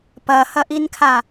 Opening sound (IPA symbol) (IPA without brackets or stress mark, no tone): p